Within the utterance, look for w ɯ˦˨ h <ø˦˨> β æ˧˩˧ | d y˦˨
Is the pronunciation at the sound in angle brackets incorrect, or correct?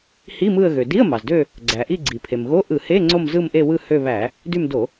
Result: correct